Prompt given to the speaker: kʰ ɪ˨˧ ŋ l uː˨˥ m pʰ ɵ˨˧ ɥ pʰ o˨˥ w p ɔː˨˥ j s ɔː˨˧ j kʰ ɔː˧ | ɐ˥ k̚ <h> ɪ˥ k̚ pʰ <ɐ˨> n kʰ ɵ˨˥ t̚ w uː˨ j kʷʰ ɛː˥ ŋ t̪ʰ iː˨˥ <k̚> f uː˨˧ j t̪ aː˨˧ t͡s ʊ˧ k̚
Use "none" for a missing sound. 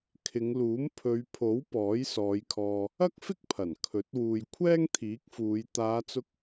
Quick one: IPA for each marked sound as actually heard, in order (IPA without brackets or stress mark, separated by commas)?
f, ɐ˨˩, k̚